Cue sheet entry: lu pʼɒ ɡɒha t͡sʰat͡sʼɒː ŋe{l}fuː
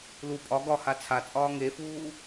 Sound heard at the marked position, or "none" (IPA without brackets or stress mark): none